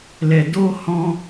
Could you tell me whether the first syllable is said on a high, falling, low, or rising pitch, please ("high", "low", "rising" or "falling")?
low